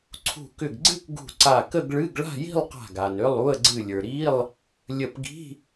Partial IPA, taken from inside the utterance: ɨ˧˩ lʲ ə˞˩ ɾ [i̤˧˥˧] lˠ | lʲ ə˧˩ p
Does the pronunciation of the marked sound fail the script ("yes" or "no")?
yes